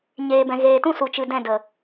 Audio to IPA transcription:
ɲ eː˨ b ɛ̃˨ ɣ eː˨ t ũ˦ s u˨ t͡ʃ ɨ˨ d ɛ̃˦˨ d ə˨

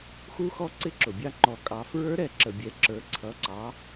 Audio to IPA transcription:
x u˧ x ɔ˧ ǀ ɪ˧˥ ǁ ʊ˩ bʲ ɑ˧ ŋ͡ǃ ɔ˩˧ kʼ ɑ˩˧ f ɹ ə˞˧˥ ɾ ɛ˩˧ ǁ ə˩ bʲ ɛ˩˧ ǁ ə˞˩˧ ǀʰ ʌ˩˧ ǀ ɑ˩˧

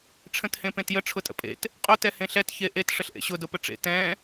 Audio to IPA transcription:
ʈ͡ʂʰ ə̃ t h ẽ p ẽ t j ə ʈ͡ʂʰ ʊ tʼ ə̰ pʼ ḛ t | qʼ ʊ t ɛ h ẽ ɬ ɛ t ç e ʔ e t ʂ ə ɬ ʔ ḛ ɕ ʊ d ʊ p ə ʈ͡ʂ ḛ t ɛ̃

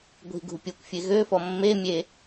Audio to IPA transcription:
ɡʷ i̤ ɡ ṳ pʲ o kʷ fʲ e ɣ ø f ɔ mː e mʲ e

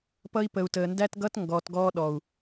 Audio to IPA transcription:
p ʌ˦ i̯ p ə˨ u̯ t əː˨ n d æ˦ t ɡ ʌ˦ t ŋ ɡ ɔː˨ t ɡ ɔː˦ ɗ ɔ˨ u̯

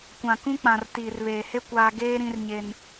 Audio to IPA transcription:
kʷ ã˨ k ũ˦ k͡p ã˨ r t iː˨ r β eː˨ h e˦ kʷ aː˦ ɡ eː˦ ɾ ĩ˦ r ɲ e˦ n

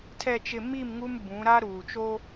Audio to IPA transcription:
tʰ ɛ˨ t͡ʃ ɪ˨ m i˦˨ m ŋ u˦ m b ũ˨˦ ɾ a˦ ɾ uː˨ t͡ʃ o˦

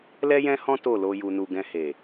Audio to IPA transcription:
l ɛ˦ j ɛ̃˦ h ɔ̃˦ t o˦˨ l o˧ j u˨ n u˨ ɡ ɛ̃˧ h e˨

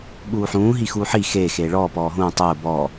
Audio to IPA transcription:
ɓ uː ħ ũː ɦ i x uː ħ i x eː x eː ɭ ɔː p ɔː ɦ ũː tˤ ʊː b ɔː

